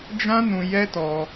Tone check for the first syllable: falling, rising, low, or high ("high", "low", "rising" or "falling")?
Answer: high